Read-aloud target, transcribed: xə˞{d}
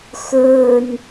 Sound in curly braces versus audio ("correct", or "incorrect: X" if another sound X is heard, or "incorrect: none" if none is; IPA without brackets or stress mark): incorrect: n